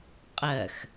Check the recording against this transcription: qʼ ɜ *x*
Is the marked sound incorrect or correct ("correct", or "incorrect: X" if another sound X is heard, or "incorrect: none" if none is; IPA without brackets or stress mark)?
correct